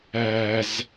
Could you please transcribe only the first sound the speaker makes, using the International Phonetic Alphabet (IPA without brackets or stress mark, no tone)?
æ